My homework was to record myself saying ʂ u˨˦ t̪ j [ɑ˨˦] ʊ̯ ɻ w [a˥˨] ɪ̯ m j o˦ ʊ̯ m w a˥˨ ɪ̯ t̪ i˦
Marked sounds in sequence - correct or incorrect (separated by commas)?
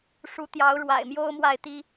correct, incorrect